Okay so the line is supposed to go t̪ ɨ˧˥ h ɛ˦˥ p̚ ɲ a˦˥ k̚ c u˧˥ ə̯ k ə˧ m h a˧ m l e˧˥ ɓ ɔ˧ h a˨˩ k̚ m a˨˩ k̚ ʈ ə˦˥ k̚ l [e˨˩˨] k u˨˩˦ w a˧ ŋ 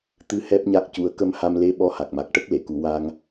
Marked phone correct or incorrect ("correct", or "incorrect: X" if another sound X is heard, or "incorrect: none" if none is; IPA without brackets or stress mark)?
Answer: correct